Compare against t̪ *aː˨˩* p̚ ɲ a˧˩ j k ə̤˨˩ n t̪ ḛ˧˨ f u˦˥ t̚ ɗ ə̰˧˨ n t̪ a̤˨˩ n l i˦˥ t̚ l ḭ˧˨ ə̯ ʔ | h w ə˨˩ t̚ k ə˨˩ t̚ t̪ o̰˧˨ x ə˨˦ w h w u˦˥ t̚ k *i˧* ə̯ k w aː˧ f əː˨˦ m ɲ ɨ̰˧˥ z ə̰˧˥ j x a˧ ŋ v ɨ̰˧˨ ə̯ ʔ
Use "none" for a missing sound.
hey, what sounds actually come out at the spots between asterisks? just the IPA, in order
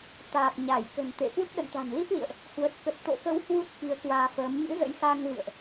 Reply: aː˨˩, i˨˦

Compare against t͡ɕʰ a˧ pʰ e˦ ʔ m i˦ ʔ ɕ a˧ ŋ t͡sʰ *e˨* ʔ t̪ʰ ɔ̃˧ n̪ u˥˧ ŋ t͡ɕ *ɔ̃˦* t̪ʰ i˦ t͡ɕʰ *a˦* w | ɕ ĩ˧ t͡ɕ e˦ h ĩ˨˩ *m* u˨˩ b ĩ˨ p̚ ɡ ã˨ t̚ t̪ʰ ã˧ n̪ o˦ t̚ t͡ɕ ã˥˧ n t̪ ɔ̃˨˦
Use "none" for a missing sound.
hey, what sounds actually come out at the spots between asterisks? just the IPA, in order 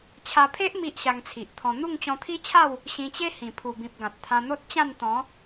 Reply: i˨, ɔ̃˧, a˥˧, pʰ

